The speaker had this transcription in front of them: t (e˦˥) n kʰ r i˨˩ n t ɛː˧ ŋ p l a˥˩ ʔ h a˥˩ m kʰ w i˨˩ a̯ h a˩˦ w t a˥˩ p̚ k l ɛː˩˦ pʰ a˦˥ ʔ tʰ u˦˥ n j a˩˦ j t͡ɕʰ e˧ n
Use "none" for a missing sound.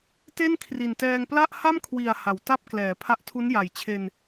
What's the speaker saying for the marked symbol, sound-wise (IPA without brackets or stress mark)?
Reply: e˥˩